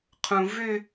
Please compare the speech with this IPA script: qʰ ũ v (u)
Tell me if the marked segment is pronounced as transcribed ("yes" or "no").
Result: no